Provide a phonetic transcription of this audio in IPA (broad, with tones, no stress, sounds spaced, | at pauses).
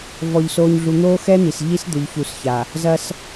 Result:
v ɔ˨ ʎ s oː˨ ɲ ɮ u˨ n̪ oː˦ x ɛ˦ n̪ i˨ s ʎ i˦ s d̪ ʏ˨ ʎ ç u˨ s ç a˨ | z ɐ˦ s